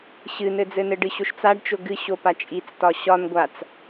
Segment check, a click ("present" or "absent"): absent